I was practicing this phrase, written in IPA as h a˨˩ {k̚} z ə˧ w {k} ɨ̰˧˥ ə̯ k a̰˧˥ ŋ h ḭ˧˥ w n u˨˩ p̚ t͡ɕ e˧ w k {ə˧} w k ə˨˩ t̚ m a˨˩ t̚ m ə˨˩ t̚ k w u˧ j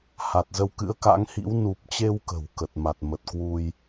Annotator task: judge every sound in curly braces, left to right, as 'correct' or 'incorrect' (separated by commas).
incorrect, correct, incorrect